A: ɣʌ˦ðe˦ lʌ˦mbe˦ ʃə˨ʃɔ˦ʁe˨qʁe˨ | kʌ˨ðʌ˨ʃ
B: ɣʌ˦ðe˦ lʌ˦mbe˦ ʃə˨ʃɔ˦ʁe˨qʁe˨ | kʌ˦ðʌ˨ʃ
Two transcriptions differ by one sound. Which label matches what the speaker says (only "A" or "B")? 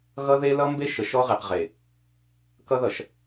B